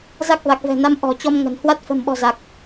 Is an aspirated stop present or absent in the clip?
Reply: absent